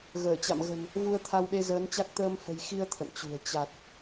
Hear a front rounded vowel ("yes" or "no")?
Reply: no